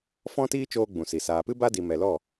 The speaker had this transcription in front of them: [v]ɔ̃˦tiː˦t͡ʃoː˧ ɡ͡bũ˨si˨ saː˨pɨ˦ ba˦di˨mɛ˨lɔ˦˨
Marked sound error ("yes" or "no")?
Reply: yes